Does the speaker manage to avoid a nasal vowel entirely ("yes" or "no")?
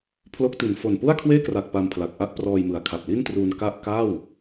yes